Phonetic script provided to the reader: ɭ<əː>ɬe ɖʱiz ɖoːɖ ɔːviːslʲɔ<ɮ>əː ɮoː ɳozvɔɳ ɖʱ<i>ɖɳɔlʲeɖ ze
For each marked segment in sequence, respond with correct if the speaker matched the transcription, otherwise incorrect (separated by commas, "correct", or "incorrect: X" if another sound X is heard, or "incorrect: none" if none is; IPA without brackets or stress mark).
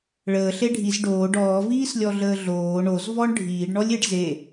correct, correct, incorrect: iː